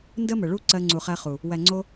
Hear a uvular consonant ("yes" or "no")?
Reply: yes